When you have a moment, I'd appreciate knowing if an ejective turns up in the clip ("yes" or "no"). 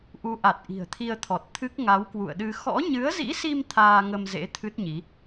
no